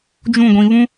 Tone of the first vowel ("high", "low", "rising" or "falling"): falling